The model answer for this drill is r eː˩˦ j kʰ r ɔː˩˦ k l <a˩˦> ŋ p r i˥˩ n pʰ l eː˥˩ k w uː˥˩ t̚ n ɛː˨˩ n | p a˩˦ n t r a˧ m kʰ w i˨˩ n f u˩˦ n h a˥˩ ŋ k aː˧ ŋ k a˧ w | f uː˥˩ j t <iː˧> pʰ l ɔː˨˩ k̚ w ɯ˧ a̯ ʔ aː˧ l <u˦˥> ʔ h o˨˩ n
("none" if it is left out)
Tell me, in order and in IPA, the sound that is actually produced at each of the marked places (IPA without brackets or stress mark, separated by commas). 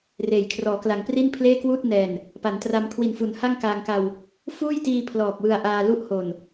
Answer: a˩˦, iː˧, u˦˥